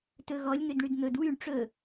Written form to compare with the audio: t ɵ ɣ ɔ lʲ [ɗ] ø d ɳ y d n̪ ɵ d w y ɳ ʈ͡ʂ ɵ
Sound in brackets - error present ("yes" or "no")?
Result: yes